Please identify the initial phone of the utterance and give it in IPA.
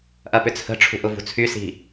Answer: ʔ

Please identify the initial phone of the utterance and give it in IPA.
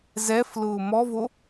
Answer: z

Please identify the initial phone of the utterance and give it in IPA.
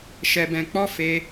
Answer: ʃ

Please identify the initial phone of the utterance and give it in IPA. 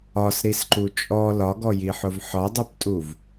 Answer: ɒ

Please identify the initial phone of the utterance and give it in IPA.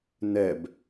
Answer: n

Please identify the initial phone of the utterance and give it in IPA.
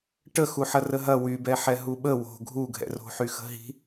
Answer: ʈ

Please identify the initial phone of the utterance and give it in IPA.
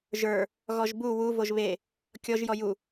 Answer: ʒ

